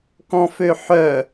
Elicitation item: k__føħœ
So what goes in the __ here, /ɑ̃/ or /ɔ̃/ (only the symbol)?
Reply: ɔ̃